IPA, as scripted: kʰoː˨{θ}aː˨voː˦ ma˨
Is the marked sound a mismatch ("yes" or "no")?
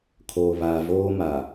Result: yes